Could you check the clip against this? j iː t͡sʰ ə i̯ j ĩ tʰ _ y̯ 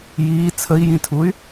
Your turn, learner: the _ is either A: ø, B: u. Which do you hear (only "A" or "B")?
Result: B